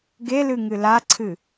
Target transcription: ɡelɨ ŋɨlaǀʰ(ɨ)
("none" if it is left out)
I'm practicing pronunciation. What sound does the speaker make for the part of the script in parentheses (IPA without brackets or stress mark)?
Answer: ɨ